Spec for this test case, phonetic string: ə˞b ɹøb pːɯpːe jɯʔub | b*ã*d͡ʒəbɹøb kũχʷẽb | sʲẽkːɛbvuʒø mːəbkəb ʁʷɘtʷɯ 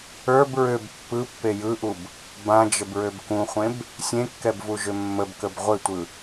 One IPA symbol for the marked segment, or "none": ã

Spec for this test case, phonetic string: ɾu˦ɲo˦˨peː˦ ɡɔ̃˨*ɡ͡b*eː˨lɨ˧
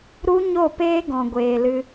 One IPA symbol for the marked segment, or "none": ɡʷ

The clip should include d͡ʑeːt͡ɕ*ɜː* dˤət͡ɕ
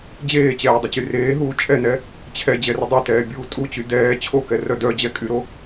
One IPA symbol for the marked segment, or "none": ɛː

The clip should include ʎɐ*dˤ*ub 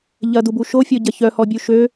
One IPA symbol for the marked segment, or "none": d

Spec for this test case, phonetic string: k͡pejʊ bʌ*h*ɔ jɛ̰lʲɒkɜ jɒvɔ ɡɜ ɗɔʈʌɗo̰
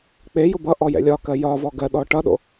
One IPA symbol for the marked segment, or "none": ʔ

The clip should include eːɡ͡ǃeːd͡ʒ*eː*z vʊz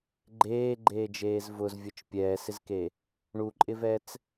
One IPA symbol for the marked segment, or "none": eː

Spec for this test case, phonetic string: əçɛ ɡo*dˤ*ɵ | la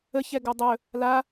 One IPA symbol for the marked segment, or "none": dˤ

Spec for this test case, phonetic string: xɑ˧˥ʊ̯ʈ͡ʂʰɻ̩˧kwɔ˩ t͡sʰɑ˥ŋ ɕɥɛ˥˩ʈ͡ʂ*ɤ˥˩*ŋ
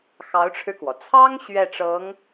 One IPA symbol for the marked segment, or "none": ɤ˧˥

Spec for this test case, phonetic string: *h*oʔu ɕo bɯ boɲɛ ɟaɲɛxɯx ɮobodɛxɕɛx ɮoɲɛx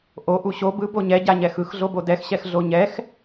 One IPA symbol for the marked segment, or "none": ʔ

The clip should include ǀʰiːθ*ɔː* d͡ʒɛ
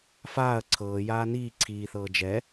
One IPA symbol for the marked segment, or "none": ɤː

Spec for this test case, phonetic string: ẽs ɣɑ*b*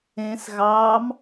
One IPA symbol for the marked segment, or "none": m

